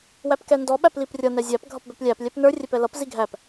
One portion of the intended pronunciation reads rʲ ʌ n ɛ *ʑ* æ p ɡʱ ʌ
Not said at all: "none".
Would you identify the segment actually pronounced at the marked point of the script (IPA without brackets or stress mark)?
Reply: zʲ